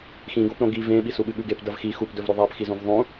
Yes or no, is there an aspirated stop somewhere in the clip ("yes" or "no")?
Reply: no